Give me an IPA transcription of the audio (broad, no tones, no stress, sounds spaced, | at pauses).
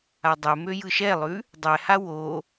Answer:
a dˤ ɵ m ø j ɯ ʃ ɛ lˠ ʉ | dˤ ɛ h a w o